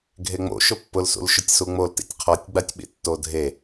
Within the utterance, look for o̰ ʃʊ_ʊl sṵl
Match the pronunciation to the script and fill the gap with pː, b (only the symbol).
pː